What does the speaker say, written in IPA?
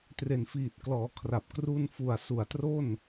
t r e˨˩ n f iː˨˩ t̚ k l ɔː˩˦ kʰ r a˨˩ p̚ k r u˧ n f u˨˩ a̯ s u˨˩ a̯ t r o˥˩ n

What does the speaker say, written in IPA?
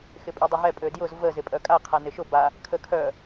x ɪ pʼ y dˤ ɪ ɦ ɛ pʼ ø d j ʊ z v ə z ɪ pʼ œ kʼ a qʰ a n ɪ ʃ ʊ b a | kʰ ə kʰ œ

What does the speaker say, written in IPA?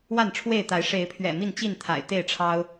w a˥˨ n ʈ͡ʂʰ w e˥˨ ɪ̯ t̪ a˨˦ ɪ̯ ʂ e˨˦ ɪ̯ pʰ ɥ ɛ̰˨˩ m i˥˨ n t͡ɕ i˥˨ n t̪ʰ a̰˨˩ ɪ̯ t̪ e˥˨ ɪ̯ ʈ͡ʂʰ ɑ˦ ʊ̯

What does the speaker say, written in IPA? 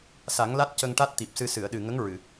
s a˨˩˦ ŋ l a˦˥ t̚ c ə˧ ŋ ʈ a˦˥ t̚ t̪ i˨˩ p̚ s ɨ˧ s ɨ˨˩˨ ə̯ ɗ ɨ˨˩ ŋ ə˧˥ ŋ ɹ ɨ˨˩˨

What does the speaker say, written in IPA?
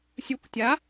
sʲ u kʷ tʲ a

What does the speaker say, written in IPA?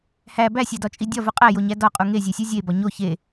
h æ b æ sʲ æ d ɒ t͡ʃʼ i dʲ ɒ v u qʼ æ j o ɲ æ d ɒ qʼ u ŋ e zʲ e sʲ u zʲ e b ɒ ɲ o ç e

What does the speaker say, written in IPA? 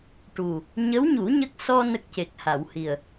ʈ u˨˩ | ɲ ə˧˥ w ɲ u˨˩˦ ɲ ə˦˥ k̚ s ɔ˧ n ə˦˥ k̚ c e˨˩ k̚ h a˨˩˨ w h i˨˩ ə̯

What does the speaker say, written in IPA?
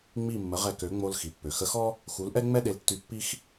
ŋ͡m i˥˩ mː ə˩˥ ʁ ɛ˩˥ k ø˩˥ ŋ͡m o˧ l x i˩ pː ø˩ x ə˧ x ɔ˥ | x u˩˥ l ʔ ɛ˥ ŋ͡m ɛ˥ ɗ e˧ l tː y˧ pː i˥ x

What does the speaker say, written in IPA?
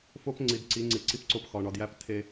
f o˦ p ŋ͡ǀ i˨ d ǀ i˨˦ ŋ͡ǀ i˨ ǀ i˦ p ǀ o˦ p x ɒ˨ ɳ ɒ˨ d j æ˦ p tʰ e˦

